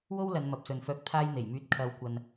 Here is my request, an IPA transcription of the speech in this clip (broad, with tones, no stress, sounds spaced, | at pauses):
w o˥ w l ɐ˨˧ n m ɐ˨ p̚ s ɵ˨ n f œː˧ k̚ t̪ʰ aː˧ j n̪ e˨˩ j m yː˧ t̚ kʰ ɐ˨˧ w kʷ ɐ˨ n